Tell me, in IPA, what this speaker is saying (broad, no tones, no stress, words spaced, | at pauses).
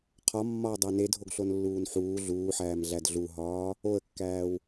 qʰɒmːɒːdˤæ nedʱoɡɬonlːuːn ħuː ɮuːħæːmɮæd ɮuɦɒː | oə̯kːæːw